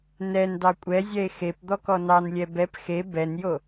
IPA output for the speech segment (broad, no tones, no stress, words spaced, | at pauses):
nɛn dɑkʷʼɛzʲɛe̯ xep d̪ɔkɔnɑnlʲɛ bɛp xe bɛnjo